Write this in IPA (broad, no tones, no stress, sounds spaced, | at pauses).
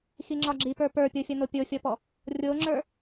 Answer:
x i ŋ͡ǁ ɒ ɡ͡ǁ i p ə˞ p ə˞ pʲ o fʲ ɐ n o pʲ o fʲ ɔ p ɔ | rʲ o ŋ͡ǁ ə˞